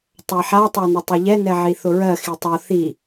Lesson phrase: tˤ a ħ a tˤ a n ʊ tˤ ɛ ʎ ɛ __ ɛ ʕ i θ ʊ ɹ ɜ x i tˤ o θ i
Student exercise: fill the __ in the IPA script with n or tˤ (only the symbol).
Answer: n